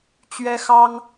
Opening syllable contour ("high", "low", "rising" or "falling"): high